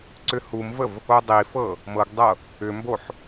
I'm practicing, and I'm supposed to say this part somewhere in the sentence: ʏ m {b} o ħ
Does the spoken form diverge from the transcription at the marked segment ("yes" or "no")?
no